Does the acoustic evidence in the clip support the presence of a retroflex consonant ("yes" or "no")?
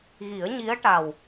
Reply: yes